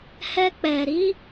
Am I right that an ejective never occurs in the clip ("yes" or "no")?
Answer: yes